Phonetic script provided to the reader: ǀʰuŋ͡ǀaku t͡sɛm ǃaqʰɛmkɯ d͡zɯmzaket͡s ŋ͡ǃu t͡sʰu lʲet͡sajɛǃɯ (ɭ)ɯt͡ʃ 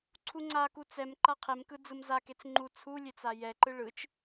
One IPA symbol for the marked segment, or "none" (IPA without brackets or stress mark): ɭ